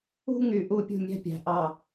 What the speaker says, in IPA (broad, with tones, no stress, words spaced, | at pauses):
ṳ˦ŋy˨ ʔu˦pʲṳ˦˨ mʲæ̤˦pʲæ̤˨ ʔɑ˦˨